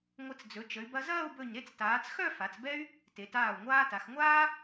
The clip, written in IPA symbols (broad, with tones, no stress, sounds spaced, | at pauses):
ŋʷ ə˧˩ t͡s d͡z ɵ˩˧ t͡ʃ ə˩˧ y̯ b ɐ˧ z ɐː˥˧ u̯ b ɵ˧˩ ɲ ɾ e˥˧ t͡s t aː˩˧ t͡s x œ˥˧ f a˩˧ t͡s b ɛ˥ y̯ | t e˩˧ t aː˧˩ u̯ ŋʷ aː˧ t a˩˧ x ŋʷ aː˥